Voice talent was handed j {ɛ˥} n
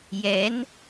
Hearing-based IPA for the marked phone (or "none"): ɛ˧˥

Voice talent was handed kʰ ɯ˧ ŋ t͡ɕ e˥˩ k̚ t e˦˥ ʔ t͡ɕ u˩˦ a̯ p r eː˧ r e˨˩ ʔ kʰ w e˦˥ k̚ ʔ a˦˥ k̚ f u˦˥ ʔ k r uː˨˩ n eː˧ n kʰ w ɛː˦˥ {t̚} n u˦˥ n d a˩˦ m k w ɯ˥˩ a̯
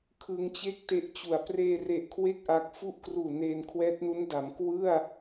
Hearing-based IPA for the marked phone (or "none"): t̚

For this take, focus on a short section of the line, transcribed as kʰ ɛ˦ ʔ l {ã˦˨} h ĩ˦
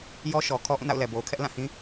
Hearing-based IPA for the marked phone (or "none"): ã˦˨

